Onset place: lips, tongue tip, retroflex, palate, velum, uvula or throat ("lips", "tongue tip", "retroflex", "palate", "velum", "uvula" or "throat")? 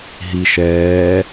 throat